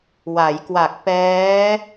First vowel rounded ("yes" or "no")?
no